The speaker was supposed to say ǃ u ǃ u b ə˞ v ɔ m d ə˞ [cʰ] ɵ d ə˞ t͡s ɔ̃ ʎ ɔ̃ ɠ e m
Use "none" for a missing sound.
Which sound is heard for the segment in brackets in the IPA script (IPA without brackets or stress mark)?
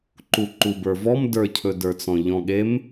cʰ